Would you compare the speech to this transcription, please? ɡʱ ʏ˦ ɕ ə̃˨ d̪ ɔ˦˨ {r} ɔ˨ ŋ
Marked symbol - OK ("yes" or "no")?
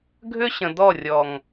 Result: no